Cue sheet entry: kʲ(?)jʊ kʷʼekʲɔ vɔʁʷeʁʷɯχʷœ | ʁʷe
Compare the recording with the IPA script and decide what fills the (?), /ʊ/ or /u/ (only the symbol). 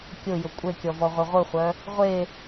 ʊ